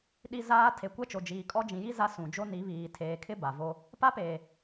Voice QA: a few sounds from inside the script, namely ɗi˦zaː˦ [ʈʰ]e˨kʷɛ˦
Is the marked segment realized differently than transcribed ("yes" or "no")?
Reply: yes